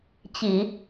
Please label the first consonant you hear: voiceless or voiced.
voiceless